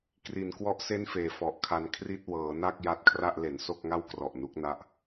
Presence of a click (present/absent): absent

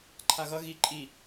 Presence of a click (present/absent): present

